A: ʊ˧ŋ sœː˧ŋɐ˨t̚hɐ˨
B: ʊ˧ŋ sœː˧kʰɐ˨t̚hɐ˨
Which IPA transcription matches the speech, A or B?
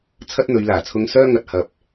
A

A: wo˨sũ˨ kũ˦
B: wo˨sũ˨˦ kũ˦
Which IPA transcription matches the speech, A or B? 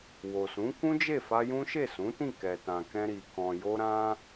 B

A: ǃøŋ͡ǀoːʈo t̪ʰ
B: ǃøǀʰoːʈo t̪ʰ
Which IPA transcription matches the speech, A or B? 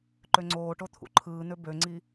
A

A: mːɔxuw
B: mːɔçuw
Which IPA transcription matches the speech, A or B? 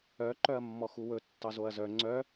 A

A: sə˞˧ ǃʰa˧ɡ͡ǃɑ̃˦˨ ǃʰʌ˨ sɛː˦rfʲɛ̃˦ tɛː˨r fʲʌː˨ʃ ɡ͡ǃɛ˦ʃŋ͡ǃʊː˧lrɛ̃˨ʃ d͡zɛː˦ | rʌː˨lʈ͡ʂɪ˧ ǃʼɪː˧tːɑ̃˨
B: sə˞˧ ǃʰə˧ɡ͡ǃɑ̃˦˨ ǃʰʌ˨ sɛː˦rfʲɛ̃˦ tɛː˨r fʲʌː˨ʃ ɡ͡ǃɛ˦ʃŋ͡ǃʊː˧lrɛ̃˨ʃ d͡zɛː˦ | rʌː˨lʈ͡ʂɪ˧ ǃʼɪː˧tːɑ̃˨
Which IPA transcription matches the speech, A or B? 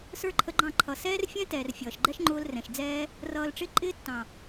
B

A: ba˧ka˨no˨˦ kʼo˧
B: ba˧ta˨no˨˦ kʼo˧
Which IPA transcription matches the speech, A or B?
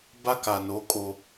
A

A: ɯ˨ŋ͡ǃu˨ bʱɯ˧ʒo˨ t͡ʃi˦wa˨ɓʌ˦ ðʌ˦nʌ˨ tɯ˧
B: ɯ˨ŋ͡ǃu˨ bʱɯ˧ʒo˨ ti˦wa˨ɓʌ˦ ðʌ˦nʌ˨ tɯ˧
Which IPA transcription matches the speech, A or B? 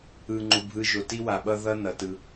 B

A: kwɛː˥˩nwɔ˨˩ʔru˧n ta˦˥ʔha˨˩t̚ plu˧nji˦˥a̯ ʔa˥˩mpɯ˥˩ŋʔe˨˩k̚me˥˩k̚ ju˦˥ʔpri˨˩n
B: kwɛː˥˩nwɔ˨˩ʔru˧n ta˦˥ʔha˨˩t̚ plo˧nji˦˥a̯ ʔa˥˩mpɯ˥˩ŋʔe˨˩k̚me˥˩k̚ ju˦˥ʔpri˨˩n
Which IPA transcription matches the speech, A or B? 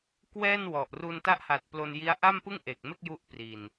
B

